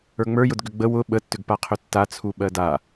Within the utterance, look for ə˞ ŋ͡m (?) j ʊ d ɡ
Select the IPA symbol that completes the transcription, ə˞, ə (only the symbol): ə˞